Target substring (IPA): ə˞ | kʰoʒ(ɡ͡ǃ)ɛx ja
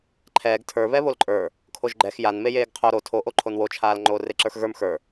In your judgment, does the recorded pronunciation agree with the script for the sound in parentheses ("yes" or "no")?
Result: yes